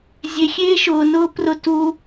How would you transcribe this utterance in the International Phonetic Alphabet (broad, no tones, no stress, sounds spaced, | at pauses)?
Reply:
zʲ e xʲ eː ʃ ʊː n ʊː p r ʊ t u